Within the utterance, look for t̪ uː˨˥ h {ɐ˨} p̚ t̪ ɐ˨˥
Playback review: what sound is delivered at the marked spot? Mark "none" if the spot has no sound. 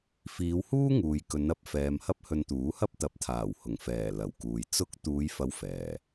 ɐ˥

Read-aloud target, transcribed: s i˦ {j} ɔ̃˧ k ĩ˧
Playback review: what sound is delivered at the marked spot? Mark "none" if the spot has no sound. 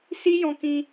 j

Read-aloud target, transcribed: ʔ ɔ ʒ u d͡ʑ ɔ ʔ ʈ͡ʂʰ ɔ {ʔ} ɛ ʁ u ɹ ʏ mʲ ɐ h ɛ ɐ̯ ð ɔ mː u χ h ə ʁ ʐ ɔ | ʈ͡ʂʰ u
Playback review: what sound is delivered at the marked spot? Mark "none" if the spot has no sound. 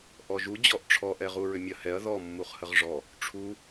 ʔ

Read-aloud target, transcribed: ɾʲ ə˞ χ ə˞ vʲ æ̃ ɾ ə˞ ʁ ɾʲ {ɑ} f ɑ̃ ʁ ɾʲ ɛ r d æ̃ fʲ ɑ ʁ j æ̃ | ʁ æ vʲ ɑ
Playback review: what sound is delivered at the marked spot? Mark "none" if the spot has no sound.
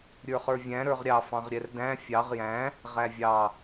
ɑ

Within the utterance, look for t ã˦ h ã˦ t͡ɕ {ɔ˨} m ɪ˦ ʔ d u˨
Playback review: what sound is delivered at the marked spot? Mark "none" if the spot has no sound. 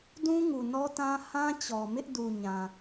ɔ˨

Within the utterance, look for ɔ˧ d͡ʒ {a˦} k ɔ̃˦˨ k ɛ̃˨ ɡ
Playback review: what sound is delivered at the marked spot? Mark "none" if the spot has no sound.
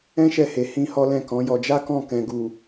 a˦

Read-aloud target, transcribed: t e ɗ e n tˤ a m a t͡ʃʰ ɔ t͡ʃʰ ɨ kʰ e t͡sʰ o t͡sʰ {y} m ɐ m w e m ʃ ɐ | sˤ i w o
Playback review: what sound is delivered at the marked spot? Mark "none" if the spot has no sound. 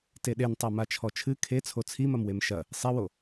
i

